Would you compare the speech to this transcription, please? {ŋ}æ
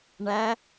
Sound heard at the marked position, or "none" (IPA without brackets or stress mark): ɳ